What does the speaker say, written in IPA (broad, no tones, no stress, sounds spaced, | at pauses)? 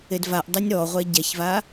e d v a ʔ dˤ ɛ nʲ ɾ ɔ ʁʷ ɛ ɟ ɛ ç v a